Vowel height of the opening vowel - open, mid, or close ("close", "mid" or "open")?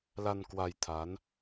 open